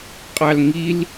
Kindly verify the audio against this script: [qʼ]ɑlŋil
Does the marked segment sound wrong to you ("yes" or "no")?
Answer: no